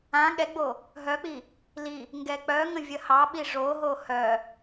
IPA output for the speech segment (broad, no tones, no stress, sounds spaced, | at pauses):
ã ɠ ɛ ɡ͡b o | ɦ œ k͡p i | l i | ŋ ɡ ɛ k͡p œ ŋ ə̃ vʲ ə h ɑ ɓ i ʐ o ɦ o h œ